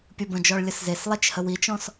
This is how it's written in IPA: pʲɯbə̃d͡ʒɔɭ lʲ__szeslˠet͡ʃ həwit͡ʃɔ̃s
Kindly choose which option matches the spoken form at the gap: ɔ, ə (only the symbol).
ə